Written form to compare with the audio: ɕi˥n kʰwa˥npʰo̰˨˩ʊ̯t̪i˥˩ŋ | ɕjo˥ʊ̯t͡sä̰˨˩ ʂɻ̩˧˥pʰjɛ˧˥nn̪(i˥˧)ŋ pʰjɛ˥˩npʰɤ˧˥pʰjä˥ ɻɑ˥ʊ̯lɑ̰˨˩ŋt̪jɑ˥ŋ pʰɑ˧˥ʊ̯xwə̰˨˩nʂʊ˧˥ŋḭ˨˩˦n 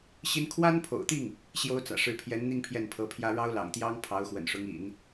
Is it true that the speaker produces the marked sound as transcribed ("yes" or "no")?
yes